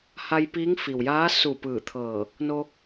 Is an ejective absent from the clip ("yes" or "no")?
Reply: yes